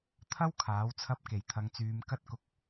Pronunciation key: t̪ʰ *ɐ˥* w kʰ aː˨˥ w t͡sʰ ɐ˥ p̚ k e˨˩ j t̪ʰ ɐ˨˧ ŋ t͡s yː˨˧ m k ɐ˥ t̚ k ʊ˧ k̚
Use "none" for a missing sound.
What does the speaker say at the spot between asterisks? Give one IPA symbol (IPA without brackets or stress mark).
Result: ɐ˥